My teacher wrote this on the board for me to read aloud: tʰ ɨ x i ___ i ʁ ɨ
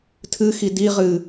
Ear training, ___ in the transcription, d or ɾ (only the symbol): d